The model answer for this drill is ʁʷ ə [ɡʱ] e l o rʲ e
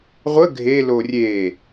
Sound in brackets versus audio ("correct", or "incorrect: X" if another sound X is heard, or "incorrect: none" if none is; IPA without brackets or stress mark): correct